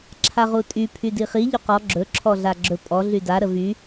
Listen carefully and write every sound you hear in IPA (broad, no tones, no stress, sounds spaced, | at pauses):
ǁʰ a ʁ u tʼ y pʰ y d i χ i ʎ ɵ q ɔ ɡ͡ǁ ɵ ǁʰ ɔ ɮ a ɡ͡ǁ ɵ pʼ ɔ ɮ y d a ɾ ə v y